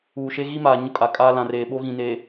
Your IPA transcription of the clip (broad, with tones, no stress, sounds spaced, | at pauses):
uː˨ ʃ e˦ ɣ i˦ m aː˨ ɲ ʊ˦ kʼ a˨ kʼ aː˦ l ã˨ r eː˨ ɓ o˦ ɣ ĩ˨ n e˨